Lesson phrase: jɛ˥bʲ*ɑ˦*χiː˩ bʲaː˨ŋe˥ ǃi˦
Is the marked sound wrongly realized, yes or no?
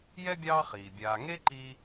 yes